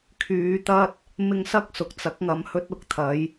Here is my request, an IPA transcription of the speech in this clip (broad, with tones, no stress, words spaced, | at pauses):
kʰyː˨˧t̪ɐ˥t̚ | mɪ˧ŋsɐ˥k̚ sʊ˨k̚t͡sɐ˨˥k̚ŋɐ˨m hɵ˥t̚ʊ˨k̚t̪ʰɐ˨˥j